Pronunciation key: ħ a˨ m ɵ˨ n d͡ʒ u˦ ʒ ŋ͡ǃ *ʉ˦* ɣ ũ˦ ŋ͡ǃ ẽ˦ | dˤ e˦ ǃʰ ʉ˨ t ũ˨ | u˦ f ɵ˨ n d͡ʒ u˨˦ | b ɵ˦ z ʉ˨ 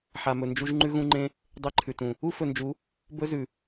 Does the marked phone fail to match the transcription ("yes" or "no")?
no